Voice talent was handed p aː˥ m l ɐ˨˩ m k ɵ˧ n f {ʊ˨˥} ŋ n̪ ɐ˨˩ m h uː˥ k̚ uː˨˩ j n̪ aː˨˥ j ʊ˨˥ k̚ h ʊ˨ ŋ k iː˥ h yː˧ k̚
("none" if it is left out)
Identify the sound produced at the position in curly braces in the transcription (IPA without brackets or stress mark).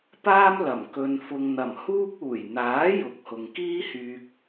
ʊ˧